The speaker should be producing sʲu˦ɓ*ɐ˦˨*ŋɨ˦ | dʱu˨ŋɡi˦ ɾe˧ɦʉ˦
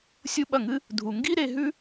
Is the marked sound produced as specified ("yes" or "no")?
yes